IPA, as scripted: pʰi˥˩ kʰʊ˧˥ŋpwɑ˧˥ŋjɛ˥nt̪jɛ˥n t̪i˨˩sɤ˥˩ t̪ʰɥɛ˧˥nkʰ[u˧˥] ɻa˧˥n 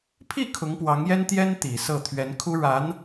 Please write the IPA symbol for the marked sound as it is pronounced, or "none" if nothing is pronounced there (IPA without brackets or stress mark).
u˥